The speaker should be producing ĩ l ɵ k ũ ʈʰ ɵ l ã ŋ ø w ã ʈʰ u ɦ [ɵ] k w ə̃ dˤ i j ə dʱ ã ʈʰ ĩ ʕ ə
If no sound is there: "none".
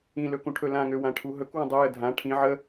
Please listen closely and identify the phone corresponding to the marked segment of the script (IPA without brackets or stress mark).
ɵ